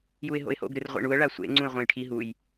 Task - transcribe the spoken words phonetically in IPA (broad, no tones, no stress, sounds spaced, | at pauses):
j u ɪ̯ ɦ o̰ ɪ̯ h o̰ ɡ ɾ ɨ r ʁʷ ḛ ɳ u ə̯ ɭ a sʷ ḛ ŋ͡ǀ ũ ɪ̯ ʁʷ ẽ j ʈʰ i ɦ u j